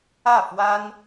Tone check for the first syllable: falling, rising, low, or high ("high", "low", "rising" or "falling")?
falling